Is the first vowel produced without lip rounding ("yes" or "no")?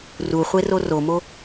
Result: no